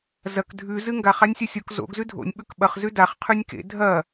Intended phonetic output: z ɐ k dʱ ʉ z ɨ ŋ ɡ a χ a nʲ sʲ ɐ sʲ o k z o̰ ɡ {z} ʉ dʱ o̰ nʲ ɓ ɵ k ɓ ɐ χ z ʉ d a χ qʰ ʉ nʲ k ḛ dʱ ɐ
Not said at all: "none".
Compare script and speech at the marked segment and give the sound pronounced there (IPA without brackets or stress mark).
z